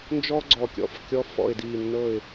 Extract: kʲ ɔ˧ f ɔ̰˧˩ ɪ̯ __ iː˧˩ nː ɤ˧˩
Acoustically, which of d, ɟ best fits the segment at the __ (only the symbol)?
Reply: d